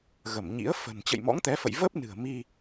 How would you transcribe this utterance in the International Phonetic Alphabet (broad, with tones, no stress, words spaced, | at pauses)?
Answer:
ɣə˧˩mɲḭ˧˥ə̯ fə̤˨˩n t͡ɕə̰˧˨jmɔ̰˧˥ŋt̪ɛ˨˦fə̰˧˨j və˦˥p̚nɨ̤˨˩ə̯mi˧